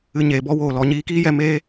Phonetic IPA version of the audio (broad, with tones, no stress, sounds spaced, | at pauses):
ɨ˨ ɲ eː˨ b ɔ˧ w oː˨ l ɔ˨ ɲ iː˧ k iː˦ j ɛ˧ m eː˧